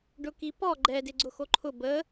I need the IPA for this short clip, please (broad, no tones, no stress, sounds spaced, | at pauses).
ɖ ʊ k i p ɔ ɡ͡ǃ ɛ d ɪ ɡ͡ǀ ʊ x o ǃʰ ʊ b ə